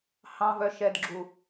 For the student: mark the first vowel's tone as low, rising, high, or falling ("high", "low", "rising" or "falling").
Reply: low